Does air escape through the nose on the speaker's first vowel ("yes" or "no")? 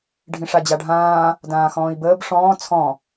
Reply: yes